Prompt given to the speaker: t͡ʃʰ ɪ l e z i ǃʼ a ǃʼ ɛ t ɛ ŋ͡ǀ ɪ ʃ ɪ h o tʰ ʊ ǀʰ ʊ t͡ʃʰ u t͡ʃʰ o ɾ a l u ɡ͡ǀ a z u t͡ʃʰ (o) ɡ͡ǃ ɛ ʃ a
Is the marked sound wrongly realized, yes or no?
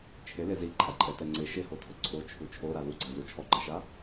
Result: yes